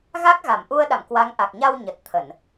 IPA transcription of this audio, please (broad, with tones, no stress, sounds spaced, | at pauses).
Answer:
ɣ a˦˥ k̚ ɣ a˧˩ m ʔ u˧ ə̯ ɗ a̰˧˨ m k w a˨˦ ŋ ʔ a˨˩ k̚ ɲ a˧ w ɲ ə˨˩ t̚ t̪ʰ ə˧˩˨ n